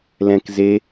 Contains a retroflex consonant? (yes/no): no